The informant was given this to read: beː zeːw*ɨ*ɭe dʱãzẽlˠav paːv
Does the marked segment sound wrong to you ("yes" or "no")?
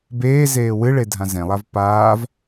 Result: no